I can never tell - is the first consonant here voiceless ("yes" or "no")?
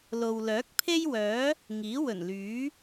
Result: no